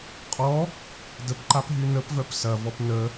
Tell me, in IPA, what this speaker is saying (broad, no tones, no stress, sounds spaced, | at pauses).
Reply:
qʼ ɔ | d ə p ǃ a p ɦ y n ə p v œ p s ɐ v ɔ p n ə